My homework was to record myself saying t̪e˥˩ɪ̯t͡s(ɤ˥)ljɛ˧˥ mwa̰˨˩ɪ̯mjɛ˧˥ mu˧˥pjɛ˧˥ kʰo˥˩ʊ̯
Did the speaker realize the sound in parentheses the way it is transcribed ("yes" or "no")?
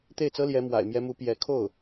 yes